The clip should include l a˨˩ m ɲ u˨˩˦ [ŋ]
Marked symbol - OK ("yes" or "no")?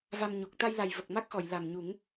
yes